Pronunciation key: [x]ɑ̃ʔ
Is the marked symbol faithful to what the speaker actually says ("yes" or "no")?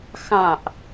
yes